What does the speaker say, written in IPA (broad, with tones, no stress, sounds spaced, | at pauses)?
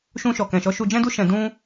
ʃ ũ˧ ʃ ɔ˨ k ɛ̃˨ ʃ ɔ˨˦ ʃ u˧ d͡ʒ ɛ̃˦ d u˦ ʃ ɛ̃˧ d ũ˦